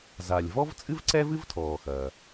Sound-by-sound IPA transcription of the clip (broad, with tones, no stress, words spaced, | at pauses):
za˩lʲ vɔ˥vt͡sʼɨ˥v ǀɛ˥vɨ˥vtʰɔː˩ xɐː˩